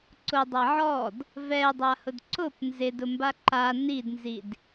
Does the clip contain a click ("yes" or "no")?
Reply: yes